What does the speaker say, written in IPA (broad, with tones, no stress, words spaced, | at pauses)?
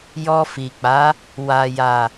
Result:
jɔ˧fi˨k͡pa˨˦ | wa˨ja˨